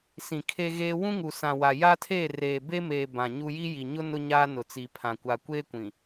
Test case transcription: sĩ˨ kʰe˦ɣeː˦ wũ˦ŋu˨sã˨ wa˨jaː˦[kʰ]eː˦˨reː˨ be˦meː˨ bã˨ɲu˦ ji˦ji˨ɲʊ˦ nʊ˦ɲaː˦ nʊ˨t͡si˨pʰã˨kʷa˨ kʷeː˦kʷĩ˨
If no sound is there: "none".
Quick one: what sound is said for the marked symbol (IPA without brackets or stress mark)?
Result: tʰ